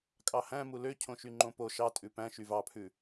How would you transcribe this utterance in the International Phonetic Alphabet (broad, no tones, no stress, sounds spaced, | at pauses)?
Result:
kʼ ɑ h æ̃ m u l ø cʰ õ ʃ y ŋ͡ǃ õ p o ʃ ɑ tʼ ʉ p æ̃ ʃ y v ɑ pʰ ʉ